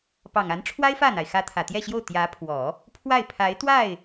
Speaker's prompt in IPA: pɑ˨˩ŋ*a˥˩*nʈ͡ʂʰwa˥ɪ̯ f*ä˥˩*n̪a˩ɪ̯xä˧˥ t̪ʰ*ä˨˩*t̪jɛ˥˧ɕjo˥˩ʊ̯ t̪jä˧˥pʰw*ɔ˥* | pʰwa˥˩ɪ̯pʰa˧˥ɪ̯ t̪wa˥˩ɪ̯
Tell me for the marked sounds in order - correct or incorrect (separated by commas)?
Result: incorrect, correct, correct, incorrect